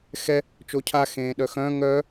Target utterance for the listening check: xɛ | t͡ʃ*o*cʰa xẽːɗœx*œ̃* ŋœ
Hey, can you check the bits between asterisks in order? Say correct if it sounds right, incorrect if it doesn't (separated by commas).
correct, correct